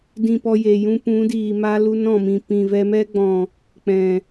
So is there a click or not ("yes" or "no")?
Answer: no